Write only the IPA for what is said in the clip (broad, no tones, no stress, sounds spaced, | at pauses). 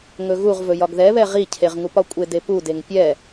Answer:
ŋ ɵ ɣ u ʁ v ɵ j ɒ ɡ ð ɛ β ɛ ʁ i cʰ e ʁ ŋ u p ɒ kʷʼ e d e p u d e ŋ pʲ ɛ